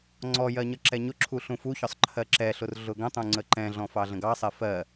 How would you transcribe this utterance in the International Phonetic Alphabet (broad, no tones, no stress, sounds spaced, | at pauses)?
ŋ͡ǀ ɔ j ɜ ɲ ʌ ǁ ɛ ɲ ʊ ǁʰ u ɬ ũ f u ç ɒ sˤ ǃʰ ɜ ǁ ɛ ɬ ʊ r ɮ ʊ ɡ ə̃ tˤ ũ ŋ͡ǀ ə ǃ ɛ̃ ɮ ɔ̃ f ɑ ɮ ə̃ ɡ ɑ sˤ ɛ f ɜ